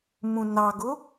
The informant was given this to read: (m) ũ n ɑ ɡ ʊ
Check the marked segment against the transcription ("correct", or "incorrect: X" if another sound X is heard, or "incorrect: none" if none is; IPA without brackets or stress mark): correct